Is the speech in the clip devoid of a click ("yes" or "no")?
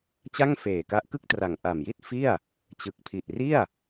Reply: yes